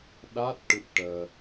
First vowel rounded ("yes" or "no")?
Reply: no